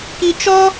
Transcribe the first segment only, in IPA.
k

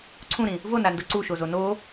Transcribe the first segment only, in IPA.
ǀʰ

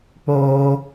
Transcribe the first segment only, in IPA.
k͡p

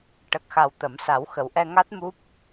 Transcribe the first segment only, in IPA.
ʈ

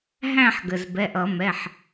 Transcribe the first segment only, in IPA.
ɦ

